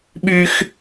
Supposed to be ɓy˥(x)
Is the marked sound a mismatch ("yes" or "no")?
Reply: no